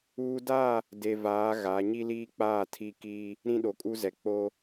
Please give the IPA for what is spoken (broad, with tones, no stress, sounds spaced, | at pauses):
uː˦ d a˦˨ | d e˨ v aː˨˦ ɣ a˨˦ ɲ i˦ l iː˦ k͡p aː˦˨ tʰ i˦˨ k iː˦ | ɾ ĩ˦ ɗ o˨ kʼ u˦ z ɛ˨ k͡p o˦